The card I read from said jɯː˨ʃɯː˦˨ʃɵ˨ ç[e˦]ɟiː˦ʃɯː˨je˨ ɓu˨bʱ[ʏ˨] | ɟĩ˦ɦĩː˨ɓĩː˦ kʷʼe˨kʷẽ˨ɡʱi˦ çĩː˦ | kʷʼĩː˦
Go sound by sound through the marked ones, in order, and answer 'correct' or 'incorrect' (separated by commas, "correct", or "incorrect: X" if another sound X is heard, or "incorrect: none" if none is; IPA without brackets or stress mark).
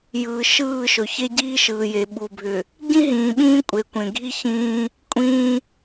correct, correct